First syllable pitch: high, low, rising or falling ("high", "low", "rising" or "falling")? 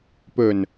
low